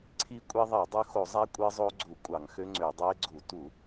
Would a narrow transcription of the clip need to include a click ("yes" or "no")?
yes